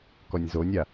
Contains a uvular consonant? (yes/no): no